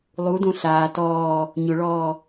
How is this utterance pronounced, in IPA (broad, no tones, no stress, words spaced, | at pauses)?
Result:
lˠudõ ɬaː tɔː | ɲʊɭɔː